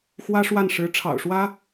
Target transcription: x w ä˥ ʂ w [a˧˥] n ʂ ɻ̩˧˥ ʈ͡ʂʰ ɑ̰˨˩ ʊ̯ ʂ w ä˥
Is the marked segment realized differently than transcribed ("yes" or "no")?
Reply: yes